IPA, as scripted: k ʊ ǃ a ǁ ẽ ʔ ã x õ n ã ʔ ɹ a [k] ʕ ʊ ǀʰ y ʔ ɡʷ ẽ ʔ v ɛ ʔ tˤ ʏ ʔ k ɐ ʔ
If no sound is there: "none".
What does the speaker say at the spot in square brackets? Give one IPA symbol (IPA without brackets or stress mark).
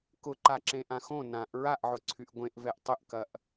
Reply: ʔ